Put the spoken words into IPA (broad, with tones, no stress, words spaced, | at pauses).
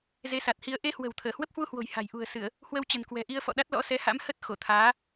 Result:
ze˨˦sa˨˩t̚ hi˧ə̯ ʔe˧hwə̤˨˩w t̪ʰəː˧˩hwə˦˥p̚hwu˧hwo̤˨˩j ha̤˨˩j ʔṳ˨˩ə̯sɨ˧˩˨ə̯ | hwə˧wt͡ɕə̤˨˩nkwɛ̤˨˩ʔi˧ə̯ fɔ̰˧˨ɗa˦˥t̚ lɔ̰˧˥sɛ˨˦ha̰˧˥mhə˦˥t̚ xo˧˩t̪ʰaː˨˦